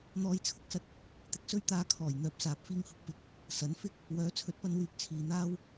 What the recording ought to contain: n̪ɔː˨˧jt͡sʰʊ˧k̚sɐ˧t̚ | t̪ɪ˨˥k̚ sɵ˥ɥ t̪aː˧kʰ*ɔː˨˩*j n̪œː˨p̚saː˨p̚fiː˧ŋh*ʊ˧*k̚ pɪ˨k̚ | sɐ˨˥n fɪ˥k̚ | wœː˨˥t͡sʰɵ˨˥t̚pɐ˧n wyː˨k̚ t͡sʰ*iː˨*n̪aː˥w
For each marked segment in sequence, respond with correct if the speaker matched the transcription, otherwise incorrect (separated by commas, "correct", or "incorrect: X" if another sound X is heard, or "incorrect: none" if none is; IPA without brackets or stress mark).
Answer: correct, correct, correct